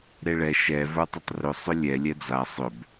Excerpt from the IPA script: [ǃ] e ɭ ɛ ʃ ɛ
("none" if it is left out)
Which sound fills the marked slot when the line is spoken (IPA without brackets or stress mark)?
ɾ